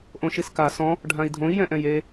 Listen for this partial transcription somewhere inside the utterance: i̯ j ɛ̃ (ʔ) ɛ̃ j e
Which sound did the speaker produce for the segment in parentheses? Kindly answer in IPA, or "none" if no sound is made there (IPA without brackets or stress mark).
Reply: ʔ